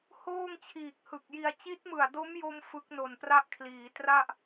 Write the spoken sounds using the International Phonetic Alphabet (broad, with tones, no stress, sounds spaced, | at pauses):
h oː˥˩ ŋ t͡ɕʰ iː˨˩ k̚ h ɯ˨˩ k̚ j i˧ a̯ t͡ɕ i˦˥ t̚ m ɯ˨˩ a̯ d o˦˥ m j o˧ m f ɯ˦˥ k̚ n o˨˩ n p r a˥˩ ʔ kʰ l iː˩˦ t r a˥˩ ʔ